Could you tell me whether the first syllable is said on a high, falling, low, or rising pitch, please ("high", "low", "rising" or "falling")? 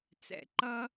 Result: low